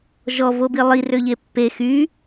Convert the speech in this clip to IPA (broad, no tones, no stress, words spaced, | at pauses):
ʒɔvobi lˠirøʎe pːe xy